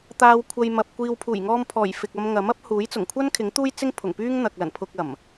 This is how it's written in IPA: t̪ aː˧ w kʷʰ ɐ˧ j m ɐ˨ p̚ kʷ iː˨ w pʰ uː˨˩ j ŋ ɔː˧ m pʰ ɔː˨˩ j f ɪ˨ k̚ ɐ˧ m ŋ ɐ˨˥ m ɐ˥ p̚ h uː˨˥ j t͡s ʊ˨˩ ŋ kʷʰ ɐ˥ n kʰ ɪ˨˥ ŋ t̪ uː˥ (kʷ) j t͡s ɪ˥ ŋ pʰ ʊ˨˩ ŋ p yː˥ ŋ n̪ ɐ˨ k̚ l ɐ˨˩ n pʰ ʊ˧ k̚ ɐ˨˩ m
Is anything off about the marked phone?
yes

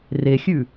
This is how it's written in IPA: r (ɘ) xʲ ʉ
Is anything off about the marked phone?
yes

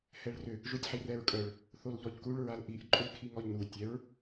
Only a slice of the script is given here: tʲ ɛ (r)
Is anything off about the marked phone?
yes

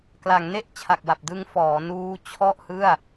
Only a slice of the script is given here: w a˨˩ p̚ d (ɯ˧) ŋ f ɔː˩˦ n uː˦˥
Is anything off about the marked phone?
no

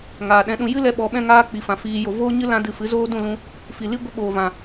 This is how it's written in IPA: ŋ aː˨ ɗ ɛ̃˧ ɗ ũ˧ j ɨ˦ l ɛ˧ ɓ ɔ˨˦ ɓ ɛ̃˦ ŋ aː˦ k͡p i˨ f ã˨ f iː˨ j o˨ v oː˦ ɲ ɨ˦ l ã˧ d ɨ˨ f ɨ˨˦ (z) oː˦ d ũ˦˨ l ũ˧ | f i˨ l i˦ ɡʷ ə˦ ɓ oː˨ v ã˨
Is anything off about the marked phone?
no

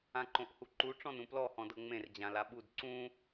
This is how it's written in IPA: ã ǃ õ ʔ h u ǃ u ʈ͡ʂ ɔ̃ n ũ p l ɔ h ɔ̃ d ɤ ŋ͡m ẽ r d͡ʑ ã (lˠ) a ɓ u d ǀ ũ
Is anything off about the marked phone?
yes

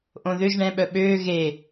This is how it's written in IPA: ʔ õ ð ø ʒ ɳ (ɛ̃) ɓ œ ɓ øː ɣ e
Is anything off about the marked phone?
no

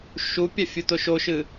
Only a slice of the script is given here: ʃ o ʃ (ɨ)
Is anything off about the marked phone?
no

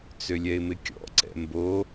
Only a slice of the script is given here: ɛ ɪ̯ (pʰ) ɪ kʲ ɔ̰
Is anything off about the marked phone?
yes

